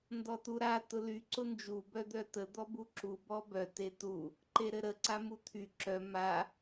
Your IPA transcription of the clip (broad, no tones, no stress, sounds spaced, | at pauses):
n d ɔ t u ɾ a t ʊ l y ǀ ʊ n d͡ʒ u b œ d̪ œ t ə d̪ ɔ b u ǁ u b ɔ b œ t e t u | ǃ e ɾ ɘ ɾ ə ǀ a m u t̪ʰ y ǁ œ m a